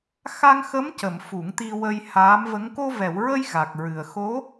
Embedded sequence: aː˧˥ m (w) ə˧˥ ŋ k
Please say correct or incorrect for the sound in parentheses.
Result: incorrect: v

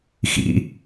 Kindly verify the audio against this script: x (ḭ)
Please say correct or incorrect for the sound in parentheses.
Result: correct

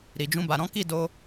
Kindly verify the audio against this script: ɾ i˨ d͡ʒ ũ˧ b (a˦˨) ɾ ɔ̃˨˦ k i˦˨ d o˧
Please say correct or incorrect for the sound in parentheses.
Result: incorrect: a˨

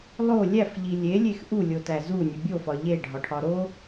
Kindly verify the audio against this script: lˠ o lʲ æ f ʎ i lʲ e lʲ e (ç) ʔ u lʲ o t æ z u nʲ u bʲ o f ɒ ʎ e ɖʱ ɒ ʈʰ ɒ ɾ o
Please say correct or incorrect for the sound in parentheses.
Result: incorrect: x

